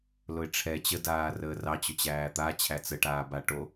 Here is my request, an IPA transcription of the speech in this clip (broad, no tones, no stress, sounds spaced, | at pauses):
l ʊ ɪ̯ ʈ͡ʂʰ ɛ t͡ɕ ə d aː r əː r ɑ t͡ɕ ʊ t͡ɕ æː t̪ a t͡ɕʰ æ t͡s ə ʈ aː b a ʈ o